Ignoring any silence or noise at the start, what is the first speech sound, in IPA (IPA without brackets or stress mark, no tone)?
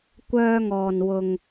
kʷ